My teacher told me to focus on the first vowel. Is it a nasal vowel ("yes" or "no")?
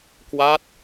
no